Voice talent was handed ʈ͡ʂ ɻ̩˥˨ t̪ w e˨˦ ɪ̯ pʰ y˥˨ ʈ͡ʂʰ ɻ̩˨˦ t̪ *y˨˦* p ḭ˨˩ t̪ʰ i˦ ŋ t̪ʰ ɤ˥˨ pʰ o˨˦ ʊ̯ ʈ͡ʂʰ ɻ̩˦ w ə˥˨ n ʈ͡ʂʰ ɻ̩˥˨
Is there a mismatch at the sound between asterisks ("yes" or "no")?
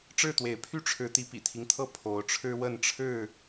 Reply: yes